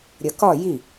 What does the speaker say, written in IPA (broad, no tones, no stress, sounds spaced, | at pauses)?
ɾʲ ʌ k ɒ j i